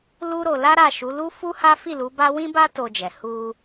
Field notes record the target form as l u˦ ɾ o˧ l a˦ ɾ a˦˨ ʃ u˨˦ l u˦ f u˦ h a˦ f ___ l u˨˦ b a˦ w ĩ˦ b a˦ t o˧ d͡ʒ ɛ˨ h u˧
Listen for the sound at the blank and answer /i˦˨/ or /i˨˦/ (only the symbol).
i˦˨